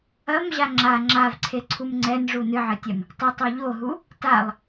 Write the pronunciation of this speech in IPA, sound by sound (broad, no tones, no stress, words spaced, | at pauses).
ɐmʑa ŋ͡ǁa ŋ͡ǁavǀʰeǀʰum ŋ͡ǀɛnʐu nɨʕɘtʲɛm | tˤɐtˤo ʎoɦu | talˠ